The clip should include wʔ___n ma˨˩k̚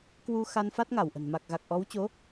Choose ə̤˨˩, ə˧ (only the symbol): ə̤˨˩